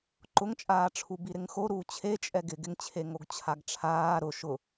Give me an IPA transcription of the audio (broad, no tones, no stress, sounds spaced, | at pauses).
ǃ ʊ ŋ t͡ʃʼ aː ʈ͡ʂʰ u b i ɾ ɪ ŋ x o ɾ uː t͡ɕʰ e t͡ʃʼ ɛ ɡ ɪ ɡ ɪ ŋ t͡ɕʰ e ŋ o ɡ t͡ɕʰ a ɡ ʈ͡ʂʰ aː ɾ ʊ ʃ ʊ